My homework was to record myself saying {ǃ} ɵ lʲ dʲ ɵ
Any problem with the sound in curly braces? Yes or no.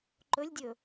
no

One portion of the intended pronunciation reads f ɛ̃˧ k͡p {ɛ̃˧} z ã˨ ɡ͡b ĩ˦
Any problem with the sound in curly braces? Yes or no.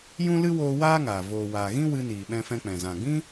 yes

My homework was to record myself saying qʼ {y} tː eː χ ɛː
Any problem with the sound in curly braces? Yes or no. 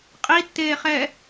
yes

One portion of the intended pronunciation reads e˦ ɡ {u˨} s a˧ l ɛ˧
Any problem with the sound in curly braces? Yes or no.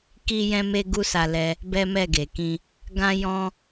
yes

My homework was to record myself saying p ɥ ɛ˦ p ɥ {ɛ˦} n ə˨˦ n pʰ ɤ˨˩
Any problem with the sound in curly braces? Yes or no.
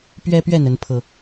yes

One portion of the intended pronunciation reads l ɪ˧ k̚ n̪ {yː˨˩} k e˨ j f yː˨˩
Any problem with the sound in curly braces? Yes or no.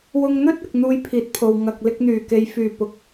no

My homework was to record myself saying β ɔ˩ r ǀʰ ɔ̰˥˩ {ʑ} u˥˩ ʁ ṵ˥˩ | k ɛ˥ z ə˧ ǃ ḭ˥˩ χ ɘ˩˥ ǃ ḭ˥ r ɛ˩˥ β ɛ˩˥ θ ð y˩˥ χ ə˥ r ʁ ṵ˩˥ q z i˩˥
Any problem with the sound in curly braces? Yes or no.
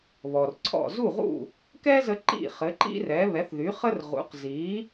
yes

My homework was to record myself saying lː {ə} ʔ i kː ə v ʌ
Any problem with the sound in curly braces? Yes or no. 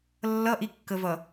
yes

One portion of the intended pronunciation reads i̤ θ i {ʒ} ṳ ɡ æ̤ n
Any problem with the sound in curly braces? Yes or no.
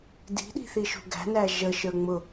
yes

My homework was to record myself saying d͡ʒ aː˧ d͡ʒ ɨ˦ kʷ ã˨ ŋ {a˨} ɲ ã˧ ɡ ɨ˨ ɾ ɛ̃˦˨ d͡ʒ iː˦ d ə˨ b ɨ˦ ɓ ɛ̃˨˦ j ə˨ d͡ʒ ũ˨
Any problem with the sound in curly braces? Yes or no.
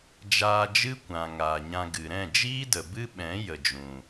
yes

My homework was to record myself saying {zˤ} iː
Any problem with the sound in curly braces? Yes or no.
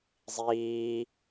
no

